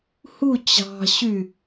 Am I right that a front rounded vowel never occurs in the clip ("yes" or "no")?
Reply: no